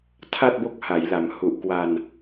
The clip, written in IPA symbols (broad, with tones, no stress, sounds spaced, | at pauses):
tʰ a˥˩ t̚ b o˦˥ k̚ h a˩˦ j l a˩˦ m h u˨˩ ʔ k w a˧ n